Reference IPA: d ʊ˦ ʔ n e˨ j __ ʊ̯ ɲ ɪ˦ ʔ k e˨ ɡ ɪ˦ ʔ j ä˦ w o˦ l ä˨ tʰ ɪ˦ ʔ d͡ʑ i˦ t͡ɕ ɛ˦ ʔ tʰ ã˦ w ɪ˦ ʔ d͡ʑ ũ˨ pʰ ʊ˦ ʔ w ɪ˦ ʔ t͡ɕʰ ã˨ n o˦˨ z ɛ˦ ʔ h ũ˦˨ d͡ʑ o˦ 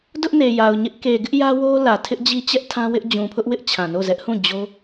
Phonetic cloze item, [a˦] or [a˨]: a˨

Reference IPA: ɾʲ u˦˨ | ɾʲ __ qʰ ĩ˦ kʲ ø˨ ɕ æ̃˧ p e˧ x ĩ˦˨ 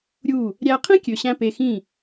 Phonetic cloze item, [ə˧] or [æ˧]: æ˧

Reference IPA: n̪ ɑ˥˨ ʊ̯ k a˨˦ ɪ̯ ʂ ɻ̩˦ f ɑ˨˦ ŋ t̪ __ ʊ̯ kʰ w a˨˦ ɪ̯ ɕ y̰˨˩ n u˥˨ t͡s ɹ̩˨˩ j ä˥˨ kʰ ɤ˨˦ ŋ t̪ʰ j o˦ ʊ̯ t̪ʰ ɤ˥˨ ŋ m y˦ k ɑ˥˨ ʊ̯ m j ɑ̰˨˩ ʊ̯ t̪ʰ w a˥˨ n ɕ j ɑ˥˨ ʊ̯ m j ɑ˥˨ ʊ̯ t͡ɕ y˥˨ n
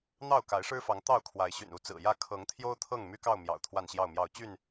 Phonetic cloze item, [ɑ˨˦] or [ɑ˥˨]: ɑ˥˨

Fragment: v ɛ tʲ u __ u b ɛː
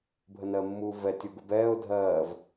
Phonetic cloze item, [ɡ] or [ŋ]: ɡ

